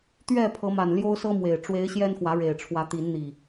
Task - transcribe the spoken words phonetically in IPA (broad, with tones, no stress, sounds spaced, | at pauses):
t̪ ɥ ɛ˥˨ pʰ ɤ˨˦ m a˨˩ n l j o˦ ʊ̯ s ɤ˦ m w e˨˩ ɪ̯ ʈ͡ʂ w e˨˦ ɪ̯ ɕ j ɛ˦ n x w ä˨˦ ɻ e˨˩ ɪ̯ ʈ͡ʂʰ w ä˨˦ t̪ i˨˦ n n̪ i˨˩